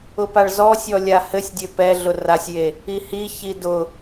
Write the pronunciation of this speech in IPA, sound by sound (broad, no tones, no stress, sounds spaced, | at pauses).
ʊ p a ɭ z ɔ sʲ ɔ lʲ a h ɘ sʲ dʲ ø p ɛ ɮ ʊ r a sʲ j e | i h i ç i d ʊ